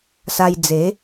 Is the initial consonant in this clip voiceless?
yes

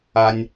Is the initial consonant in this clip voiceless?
no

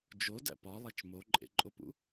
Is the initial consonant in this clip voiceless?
no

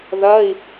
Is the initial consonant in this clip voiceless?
no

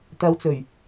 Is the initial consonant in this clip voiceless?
yes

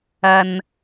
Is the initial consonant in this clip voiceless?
no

